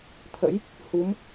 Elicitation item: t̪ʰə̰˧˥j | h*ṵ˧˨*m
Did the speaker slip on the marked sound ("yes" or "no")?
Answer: yes